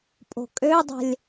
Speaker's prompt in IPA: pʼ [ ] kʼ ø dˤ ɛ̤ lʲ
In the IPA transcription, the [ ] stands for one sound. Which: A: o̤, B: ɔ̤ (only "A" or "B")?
A